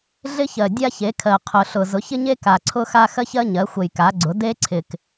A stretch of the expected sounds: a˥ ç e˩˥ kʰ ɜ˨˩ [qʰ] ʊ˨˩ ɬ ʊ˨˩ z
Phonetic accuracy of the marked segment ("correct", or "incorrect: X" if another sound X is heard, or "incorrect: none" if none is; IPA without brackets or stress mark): correct